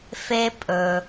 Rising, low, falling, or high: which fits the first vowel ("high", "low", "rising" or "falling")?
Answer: high